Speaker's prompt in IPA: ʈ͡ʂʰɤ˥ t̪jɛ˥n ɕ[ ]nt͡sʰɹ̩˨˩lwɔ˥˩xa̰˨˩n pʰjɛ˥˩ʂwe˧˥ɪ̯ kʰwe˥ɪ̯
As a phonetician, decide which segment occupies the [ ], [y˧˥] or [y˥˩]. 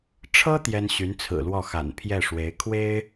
y˧˥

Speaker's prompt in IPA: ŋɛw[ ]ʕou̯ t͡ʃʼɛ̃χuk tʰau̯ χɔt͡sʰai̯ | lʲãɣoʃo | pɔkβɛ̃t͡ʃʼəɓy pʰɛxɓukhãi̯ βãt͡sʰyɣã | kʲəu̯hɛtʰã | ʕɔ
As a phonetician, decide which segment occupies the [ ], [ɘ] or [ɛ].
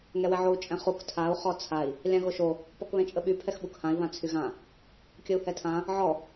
ɛ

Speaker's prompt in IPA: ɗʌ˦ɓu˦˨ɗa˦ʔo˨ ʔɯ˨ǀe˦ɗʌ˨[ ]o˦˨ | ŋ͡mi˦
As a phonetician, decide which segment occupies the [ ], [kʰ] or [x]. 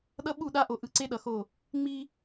x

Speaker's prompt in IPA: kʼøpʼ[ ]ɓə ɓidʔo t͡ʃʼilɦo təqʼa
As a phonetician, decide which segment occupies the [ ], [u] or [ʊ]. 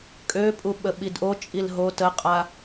u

